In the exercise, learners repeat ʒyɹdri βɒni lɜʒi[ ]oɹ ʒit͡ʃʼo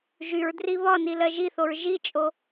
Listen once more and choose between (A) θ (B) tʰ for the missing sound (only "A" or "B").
A